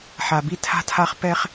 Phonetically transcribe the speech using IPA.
ħ a˨ b i˦ tʰ a̤˦ tʰ a˦ χ p ɛ˦ χ

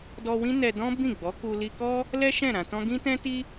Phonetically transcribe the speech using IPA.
d ɔ˧ w ĩ˦ n ɛ˧ d ɔ̃˦ b ĩ˦˨ ɡ͡b ɔ˨˦ k u˧ l i˧ k ɔ˦ | l ɛ˦ ʃ ɛ̃˦˨ ɾ ã˧ t ɔ̃˦ ɡ ĩ˦ t ɛ̃˦ t i˦

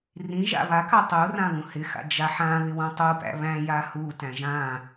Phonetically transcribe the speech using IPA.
r ĩ ʒ a̰ β a k a tˤ u r ã β ũ h ɪ x a̰ d͡ʒ a ħ ã β ɪ w ũ tˤ u p æ̰ β æ̃ j a h u t æ̃ ʒ ã

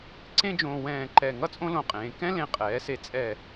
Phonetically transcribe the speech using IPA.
ǀ ẽ˥ d͡ʒ õː˧ w ɛ̃ː˧˩ ǃ ɛ˧˩ ŋ ʌ˥ t͡sʼ õ˥ l õ˧˩ qʼ ẽː˩˧ k ɛ̃˥ l ẽ˧ qʼ ɛː˩˧ s e˧ t͡sʼ ɛ˧˩

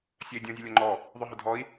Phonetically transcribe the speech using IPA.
sʲ ɜ i̯ dʲ ɔ̃ zʲ ʌ lʲ ɒ ŋ͡ǃ ɔ | ðˤ ʊ ɦ ʊ dʱ ɔ i̯

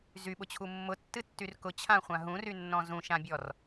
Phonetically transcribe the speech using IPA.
z y ɓ ʊ t͡ɕʰ u mː ʊ tː ɨ tː y r k ʊ t͡ɕʰ ã χʷ ã ɦ ũ r y nː ɔ̃ z ũ ʃ ã bʲ ɔ r

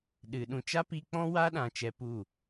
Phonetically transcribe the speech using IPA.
ɗ ɨ˨ ɗ ũ˧ t͡ʃ a˦ p i˧ k͡p ɔ̃˦ w a˦ ɗ ã˨ t͡ʃ ɛ˧ p u˦˨

